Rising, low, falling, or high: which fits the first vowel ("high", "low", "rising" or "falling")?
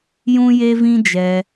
high